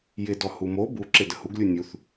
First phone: j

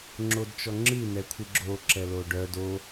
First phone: ŋ͡ǁ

